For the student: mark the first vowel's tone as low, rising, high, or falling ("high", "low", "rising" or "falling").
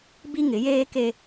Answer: high